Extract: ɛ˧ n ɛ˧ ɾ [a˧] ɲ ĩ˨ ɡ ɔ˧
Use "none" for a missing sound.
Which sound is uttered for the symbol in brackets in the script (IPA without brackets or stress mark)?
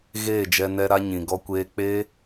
a˧